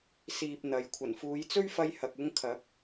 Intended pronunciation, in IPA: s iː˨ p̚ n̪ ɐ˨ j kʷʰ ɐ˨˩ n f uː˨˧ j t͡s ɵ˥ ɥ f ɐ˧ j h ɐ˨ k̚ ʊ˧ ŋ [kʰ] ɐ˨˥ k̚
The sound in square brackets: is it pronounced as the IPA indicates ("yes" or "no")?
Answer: yes